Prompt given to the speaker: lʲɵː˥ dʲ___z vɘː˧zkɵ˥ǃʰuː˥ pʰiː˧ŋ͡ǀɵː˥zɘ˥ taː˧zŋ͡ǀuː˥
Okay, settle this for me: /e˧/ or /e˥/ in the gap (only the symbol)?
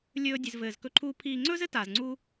e˧